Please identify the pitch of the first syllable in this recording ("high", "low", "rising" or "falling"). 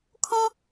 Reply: high